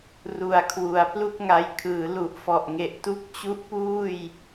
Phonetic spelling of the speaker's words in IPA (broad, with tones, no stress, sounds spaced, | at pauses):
r u˨˩ a̯ kʰ w u˩˦ a̯ p l u˥˩ k̚ ŋ a˧ j kʰ ɯː˩˦ l u˨˩ ʔ f ɔ˨˩ ʔ ŋ e˨˩ ʔ t u˥˩ k̚ t͡ɕ u˦˥ ʔ p uː˥˩ j